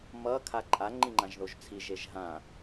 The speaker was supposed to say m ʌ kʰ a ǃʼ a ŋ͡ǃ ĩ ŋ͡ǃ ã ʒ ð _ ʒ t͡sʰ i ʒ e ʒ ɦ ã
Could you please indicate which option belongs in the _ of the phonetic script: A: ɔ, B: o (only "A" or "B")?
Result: B